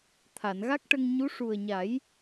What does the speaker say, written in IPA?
t̪ʰ a˨˩˨ n ɣ a˦˥ k̚ ʈ ə˧ ŋ ɲ u˧˥ ʂ u˨˩ ə̯ ɲ a˨˩˦ j

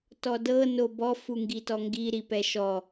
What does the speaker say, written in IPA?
t ɔ d ɤ n o b ɔ f u ŋ ɡ i t ɔ ŋ ɡ i ɾ i p ɛ ʃ ɔ

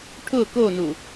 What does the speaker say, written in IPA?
ʈʰ ʊ k o n u

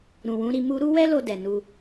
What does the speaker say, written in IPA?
ɾ ũ˨ w ũ˨˦ ɾ i˧ m u˦ ɾ u˦ w ɛ˦ l o˧ d ɛ˨ n u˧

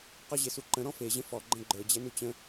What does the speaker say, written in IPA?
q ɔ ʑ e s u ǃ ə̃ ɾ ɔ̃ f e ʑ ə̃ f ɔ ɡ͡ǃ ə̃ ɡ͡ǃ ə˞ d͡ʑ ɛ n u t͡ɕ ə̃

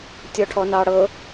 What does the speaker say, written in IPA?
tʲ ɔ ʈʰ ɔ n ɑ ɽ ɤ

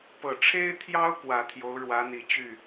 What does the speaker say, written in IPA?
p ɤ˨˩ ʈ͡ʂʰ e˥ ɪ̯ t̪ʰ j ɑ˥ ʊ̯ k w ä˨˩ t̪ʰ j o˧˥ ʊ̯ ɻ w ä˧˥ n̪ i˨˩ t͡ɕ y˥˩

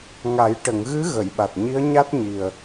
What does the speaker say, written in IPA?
ŋ a˨˩˦ j ʈ ə˨˩˨ ŋ ɣ ɨ˧˥ ɣ ə˨˩˨ j ɓ a˨˩ t̚ ɲ i˧˥ ə̯ ɲ a˦˥ t̚ ɲ i˨˩ ə̯

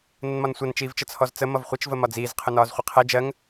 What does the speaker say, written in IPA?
n ə n m ɒ n sʷ ʌ n t͡ʃ iː v t͡ʃ ə t͡sʰ ɔ z t͡s ə m ʌ v χʷ ə t͡ʃ v ə m ɒ d͡z iː z qʰ ʊ n ɒː z χʷ ɪ qʰ ɜ d͡ʒ ɜ ŋ

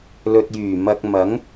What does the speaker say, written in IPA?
l ɵ˨ t̚ j yː˨˩ m ɐ˧ k̚ m ɐ˨˥ ŋ

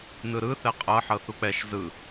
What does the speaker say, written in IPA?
n ɯ ɾ ɯ θ ɛ qʼ ɤ ħ ɤ θ u k͡p ɛ ʃ z ɯ

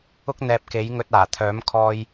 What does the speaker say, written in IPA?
ʊ˥ k̚ n̪ ɛː˧ p̚ k e˨˥ j ŋ ɵ˧ t̚ aː˨˩ t̪ʰ œː˨˥ m kʰ ɔː˧ j

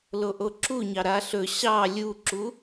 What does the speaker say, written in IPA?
l o ʔ o ǁ u ɲ ɑ ɾ a ɬ ɵ ɕ ɑ lʲ u ǁ u

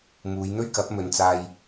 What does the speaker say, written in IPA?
m uː˨˧ j n̪ ɵ˥ ɥ k ɐ˨˥ p̚ m ɵ˨˧ n t͡s aː˧ j

